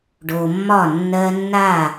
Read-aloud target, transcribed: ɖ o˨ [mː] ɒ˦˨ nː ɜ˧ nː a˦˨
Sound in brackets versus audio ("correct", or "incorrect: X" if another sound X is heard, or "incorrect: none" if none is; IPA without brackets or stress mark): correct